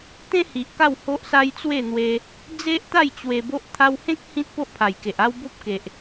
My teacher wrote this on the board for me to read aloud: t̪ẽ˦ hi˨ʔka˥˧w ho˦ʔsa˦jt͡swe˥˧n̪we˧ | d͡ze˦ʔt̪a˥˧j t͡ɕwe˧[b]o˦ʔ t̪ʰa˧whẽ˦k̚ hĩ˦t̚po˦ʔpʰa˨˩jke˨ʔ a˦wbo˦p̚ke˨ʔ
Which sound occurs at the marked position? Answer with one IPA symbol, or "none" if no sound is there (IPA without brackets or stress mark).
b